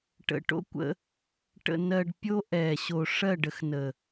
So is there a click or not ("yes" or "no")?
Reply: no